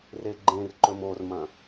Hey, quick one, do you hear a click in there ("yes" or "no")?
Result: yes